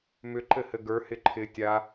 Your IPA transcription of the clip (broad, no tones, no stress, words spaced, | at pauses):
mʏǃɘhɘ ɡə˞hɪ ǃʰɪ tʲa